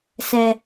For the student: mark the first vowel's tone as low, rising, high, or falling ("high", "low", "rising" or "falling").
high